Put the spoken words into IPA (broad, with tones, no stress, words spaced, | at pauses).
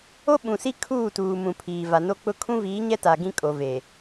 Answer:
o˦ɓũ˨si˦ kʰuː˦˨tuː˨mũ˨ pʰiː˨va˨no˦k͡pʊ˦ kʰũ˦viː˨˦ɲɛ˦ta˨ ɡĩ˦kʼo˨ ve˨